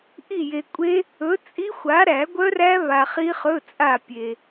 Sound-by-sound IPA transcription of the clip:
ʔ i˦˨ j e˨ kʷʼ e˦˥ | ɵ˨˥ t͡sʼ i˦˥ xʷ a˨˥ ɾ æ˨˩˦ ɡʷ œ˦˥ r æ˦˥ β a˨ χ i˦˥ χ ɵ˧˥˧ t͡sʼ a˦˨ pʲ e˨

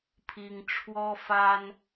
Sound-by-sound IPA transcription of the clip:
pʰ i˥ ŋ ʈ͡ʂʰ w ɔ˥ f a˥ n

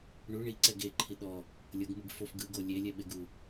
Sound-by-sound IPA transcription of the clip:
ɳ u ɳ i ǀ ɛ ɡ e ǃʰ i ɗ ɔ | lʲ ɤ ɡ m ɯ ɡ f o f ɡ ɯ ɡ o lʲ e lʲ ɛ ɓ e ɡ u

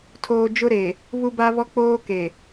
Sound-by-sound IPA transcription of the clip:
tʰ oː˨ d͡ʒ ʊ˦ ɾ e˨ | β u˦ b a˦ β ɔ˦ k͡p oː˦ k e˨

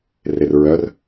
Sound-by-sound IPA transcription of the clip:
r e r ɹ œ r

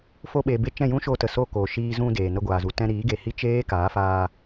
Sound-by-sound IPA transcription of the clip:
f o˧ ɓ eː˨ b e˧ t͡ʃ ɛ̃˦˨ j ũ˦ ʃ oː˧ t ə˨ s o˦˨ k oː˨ ʃ iː˧ z ũ˧ d eː˨ n ə˧ ɡʷ aː˨ z u˨ t ɛ̃˧ ɾ iː˨˦ ɡ e˨ h i˦ t͡ʃ eː˦ k aː˨˦ f aː˧

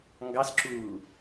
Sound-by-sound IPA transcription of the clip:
ŋ ɡ ɑ s ǁ uː

